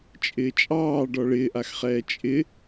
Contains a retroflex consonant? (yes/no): yes